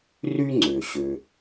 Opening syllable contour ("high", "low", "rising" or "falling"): high